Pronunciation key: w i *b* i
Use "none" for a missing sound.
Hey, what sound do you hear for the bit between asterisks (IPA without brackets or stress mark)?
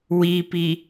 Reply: p